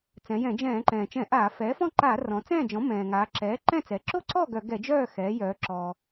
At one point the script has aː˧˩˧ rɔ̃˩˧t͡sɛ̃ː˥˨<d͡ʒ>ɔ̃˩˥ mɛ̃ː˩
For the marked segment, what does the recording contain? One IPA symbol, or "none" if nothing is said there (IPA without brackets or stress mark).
d͡ʒ